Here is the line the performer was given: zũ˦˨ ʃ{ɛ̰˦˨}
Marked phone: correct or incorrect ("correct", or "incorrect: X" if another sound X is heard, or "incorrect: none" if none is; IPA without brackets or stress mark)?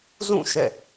correct